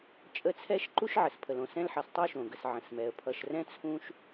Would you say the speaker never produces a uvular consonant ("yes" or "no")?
yes